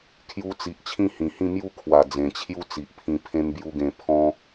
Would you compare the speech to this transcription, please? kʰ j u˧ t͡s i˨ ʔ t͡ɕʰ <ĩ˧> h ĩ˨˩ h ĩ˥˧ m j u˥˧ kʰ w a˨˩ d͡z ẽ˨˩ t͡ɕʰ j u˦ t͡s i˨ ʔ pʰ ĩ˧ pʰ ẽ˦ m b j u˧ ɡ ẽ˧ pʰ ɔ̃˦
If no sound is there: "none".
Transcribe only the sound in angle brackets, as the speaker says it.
ĩ˥˧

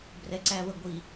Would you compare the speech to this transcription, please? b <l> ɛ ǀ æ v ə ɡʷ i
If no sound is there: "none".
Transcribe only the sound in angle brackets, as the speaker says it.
r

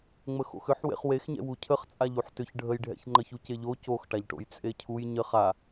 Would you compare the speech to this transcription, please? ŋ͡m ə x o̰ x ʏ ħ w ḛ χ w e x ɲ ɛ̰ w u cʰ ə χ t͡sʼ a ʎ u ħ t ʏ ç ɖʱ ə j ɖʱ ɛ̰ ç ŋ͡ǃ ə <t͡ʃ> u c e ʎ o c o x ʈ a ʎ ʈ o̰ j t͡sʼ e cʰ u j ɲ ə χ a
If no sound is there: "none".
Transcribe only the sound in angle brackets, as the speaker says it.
ç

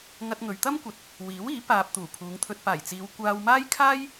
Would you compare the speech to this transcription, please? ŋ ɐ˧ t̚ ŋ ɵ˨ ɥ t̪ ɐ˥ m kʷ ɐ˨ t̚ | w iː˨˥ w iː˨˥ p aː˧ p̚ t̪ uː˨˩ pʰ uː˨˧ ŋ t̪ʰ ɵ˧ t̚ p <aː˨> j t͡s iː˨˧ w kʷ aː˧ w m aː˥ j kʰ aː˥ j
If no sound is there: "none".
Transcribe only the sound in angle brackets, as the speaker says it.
aː˨˩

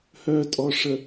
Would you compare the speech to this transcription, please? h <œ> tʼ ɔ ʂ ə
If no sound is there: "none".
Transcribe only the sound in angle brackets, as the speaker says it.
œ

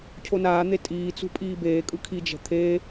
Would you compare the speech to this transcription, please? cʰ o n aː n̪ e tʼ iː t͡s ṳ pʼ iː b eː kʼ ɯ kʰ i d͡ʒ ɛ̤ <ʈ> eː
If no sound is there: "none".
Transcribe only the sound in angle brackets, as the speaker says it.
t̪ʰ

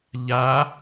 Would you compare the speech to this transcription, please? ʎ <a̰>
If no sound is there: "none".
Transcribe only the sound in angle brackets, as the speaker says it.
a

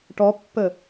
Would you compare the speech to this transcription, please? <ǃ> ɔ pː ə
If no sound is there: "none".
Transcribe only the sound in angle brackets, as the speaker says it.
ʈ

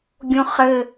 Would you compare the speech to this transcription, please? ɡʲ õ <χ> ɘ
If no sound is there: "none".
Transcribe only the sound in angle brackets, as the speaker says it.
χ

